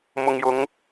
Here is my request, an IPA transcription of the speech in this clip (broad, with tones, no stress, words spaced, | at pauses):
mʊ˨ŋjʊ˨˧ŋ